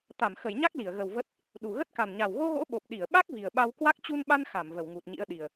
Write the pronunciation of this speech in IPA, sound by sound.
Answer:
t̪ a˧˩ m x ə˧˩ j ɲ a˦˥ k̚ l i˧˩ ə̯ ɣ ə˨˩ w v ə˦˥ t̚ | ɗ u˨˩ ɣ ə˦˥ t̚ k a˨˩ n ɲ a˨˩ w ɣ o˧ ɣ o̰˧˥ ɓ o˨˩ p̚ ɗ i˧˩ ə̯ ɓ a˦˥ k̚ v i˨˩ ə̯ ɓ a˧ w k w a˦˥ k̚ t͡ɕ u˧ n ɓ a˧ n x a˧˩ m v ə˧˩ w ŋ u˨˩ t̚ ɲ ḭ˧˥ ə̯ ɗ i˨˩ ə̯

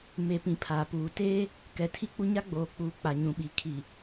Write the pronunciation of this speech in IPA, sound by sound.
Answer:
m e˨ p ĩ˨ pʰ aː˨ p uː˨ t eː˦ | k ɛ˨ tʰ i˦ k͡p u˦ ɲ a˦ ɡ͡b oː˨ k͡p uː˨ k͡p a˨ ɲ ũ˨ ɓ i˨ kʰ i˨

